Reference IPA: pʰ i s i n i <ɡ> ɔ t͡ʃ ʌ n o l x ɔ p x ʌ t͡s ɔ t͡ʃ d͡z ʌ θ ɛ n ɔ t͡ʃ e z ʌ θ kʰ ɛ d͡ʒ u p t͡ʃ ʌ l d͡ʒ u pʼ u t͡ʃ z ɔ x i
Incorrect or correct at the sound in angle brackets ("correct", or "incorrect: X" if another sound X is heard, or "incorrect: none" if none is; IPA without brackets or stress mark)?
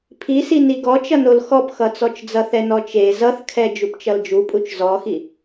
correct